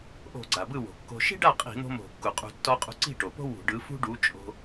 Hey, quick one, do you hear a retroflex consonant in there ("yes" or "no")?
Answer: yes